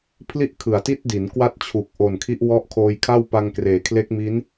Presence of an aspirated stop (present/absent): present